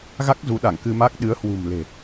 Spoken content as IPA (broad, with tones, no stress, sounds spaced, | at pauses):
ɣ a˦˥ k̚ z u˨˦ ɗ a˧˩ ŋ k ɨ˧ m a˦˥ k̚ ɗ ɨ˨˦ ə̯ h w ṳ˨˩ m l e̤˨˩